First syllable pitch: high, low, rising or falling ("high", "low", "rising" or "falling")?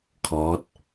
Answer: rising